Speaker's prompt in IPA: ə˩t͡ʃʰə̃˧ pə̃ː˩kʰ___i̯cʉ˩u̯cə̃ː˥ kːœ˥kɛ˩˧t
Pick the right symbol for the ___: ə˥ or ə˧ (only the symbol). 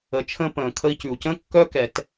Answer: ə˧